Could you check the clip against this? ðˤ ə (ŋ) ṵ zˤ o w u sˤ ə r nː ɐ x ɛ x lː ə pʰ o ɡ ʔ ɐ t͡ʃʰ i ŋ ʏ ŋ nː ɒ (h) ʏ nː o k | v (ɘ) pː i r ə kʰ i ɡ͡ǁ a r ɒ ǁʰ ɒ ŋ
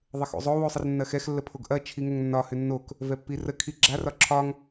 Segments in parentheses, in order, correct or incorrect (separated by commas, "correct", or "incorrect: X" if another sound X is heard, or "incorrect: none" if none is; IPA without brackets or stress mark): incorrect: x, correct, incorrect: ɛ